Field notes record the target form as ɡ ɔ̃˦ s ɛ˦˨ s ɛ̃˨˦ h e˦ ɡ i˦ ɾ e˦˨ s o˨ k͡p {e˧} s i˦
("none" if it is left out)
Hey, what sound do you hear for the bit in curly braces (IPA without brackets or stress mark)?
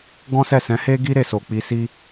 i˧